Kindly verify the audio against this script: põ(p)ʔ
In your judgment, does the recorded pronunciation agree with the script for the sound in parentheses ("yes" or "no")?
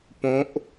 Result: no